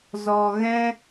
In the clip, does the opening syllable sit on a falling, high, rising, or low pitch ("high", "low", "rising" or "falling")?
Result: low